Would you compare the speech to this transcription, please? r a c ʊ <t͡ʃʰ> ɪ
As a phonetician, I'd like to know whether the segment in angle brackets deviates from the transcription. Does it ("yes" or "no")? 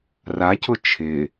no